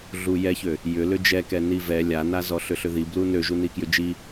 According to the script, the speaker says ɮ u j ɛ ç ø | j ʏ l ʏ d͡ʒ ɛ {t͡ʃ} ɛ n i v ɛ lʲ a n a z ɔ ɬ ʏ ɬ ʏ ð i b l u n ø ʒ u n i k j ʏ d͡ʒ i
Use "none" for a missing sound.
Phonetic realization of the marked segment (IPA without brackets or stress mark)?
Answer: k